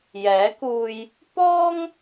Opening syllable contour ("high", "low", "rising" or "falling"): rising